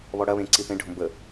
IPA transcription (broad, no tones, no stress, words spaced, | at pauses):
βɔɽɐβẽ ǀiθẽɖʱõ bə